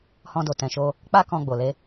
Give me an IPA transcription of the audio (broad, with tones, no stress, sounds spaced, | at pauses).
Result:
h ɔ̃˧ d o˨ t ɛ̃˨ ʃ o˧ | k͡p a˦ k ɔ̃˧ ɡ͡b o˨ l e˧